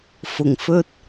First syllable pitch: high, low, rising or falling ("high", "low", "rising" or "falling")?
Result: low